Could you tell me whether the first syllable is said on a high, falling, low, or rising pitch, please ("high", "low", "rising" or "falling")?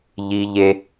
high